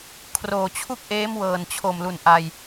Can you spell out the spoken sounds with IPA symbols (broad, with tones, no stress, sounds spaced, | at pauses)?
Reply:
kʰ r oː˨˩ t͡ɕʰ u˥˩ k̚ ʔ eː˦˥ m w ɤː˨˩ n t͡ɕʰ o˨˩ m l u˨˩ n ʔ a˧ j